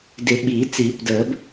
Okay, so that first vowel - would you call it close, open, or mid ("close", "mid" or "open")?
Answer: close